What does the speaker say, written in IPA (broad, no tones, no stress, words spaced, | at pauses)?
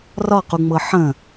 rɒquŋ͡mɤ ħə̃